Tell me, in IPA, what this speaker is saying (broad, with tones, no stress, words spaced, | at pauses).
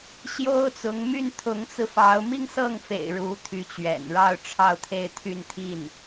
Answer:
ɕjo˥ʊ̯t͡sʊ˧˥ŋ my˥˩nt̪ʰʊ˧˥ŋt͡sɹ̩˧fɑ˧˥ʊ̯ mi˥˧ŋsɤ˥˩ŋfḛ˨˩ɪ̯ ɻu˧˥t̪ʰy˧˥t͡ɕɥɛ̰˨˩nɻɑ˥˧ʊ̯ ʈ͡ʂʰɑ˥˧ʊ̯t̪ʰe˥˧ɪ̯t̪ʰy˥˧nt̪ʰi˥˩n